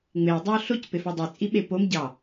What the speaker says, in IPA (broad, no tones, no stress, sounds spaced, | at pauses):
ŋ͡m e o̯ dˤ ɑ o̯ ɬ o c p e f ɑ dˤ y t͡sʼ i ɓ e p o m ɟ ɑ